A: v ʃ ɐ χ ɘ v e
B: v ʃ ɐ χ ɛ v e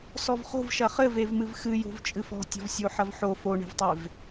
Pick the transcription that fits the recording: A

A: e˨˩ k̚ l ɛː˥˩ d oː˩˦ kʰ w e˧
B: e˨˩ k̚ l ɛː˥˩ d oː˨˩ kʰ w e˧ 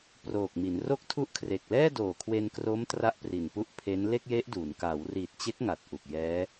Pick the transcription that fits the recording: B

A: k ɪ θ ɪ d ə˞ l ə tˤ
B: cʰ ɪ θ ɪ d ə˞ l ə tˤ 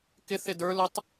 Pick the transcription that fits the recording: A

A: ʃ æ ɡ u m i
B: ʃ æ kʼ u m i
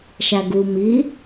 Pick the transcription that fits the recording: A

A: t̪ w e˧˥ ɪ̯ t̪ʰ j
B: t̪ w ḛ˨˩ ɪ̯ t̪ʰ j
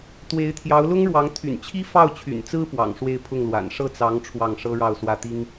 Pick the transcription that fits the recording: A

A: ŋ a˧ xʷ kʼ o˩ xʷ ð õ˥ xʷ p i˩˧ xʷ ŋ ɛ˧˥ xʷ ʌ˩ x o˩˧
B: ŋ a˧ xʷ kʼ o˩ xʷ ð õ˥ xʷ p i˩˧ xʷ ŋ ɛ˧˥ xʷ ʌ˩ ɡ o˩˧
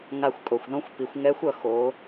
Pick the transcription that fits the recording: A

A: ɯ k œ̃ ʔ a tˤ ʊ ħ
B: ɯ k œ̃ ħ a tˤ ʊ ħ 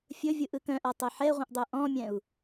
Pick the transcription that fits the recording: A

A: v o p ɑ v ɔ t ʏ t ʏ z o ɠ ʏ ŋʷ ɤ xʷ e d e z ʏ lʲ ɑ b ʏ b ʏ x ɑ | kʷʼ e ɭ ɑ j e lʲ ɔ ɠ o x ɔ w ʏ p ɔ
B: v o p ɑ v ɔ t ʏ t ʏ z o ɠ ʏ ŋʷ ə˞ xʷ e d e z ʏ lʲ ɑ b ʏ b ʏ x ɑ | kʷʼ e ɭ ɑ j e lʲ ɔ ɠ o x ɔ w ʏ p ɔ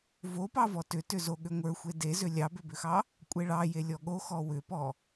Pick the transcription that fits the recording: B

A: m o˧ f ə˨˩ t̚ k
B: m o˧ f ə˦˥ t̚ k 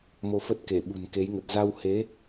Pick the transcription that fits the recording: B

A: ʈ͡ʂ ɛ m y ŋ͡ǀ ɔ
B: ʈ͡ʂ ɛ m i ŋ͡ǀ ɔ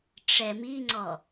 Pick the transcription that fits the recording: B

